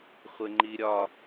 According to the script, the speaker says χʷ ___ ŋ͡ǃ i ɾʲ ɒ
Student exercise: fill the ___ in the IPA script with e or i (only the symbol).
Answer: e